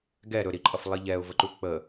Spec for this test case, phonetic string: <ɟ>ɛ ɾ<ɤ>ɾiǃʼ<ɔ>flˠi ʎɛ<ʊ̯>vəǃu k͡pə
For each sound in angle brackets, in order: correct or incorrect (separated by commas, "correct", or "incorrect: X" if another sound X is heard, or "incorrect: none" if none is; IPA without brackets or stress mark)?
incorrect: ɡ, incorrect: ɵ, incorrect: ʌ, correct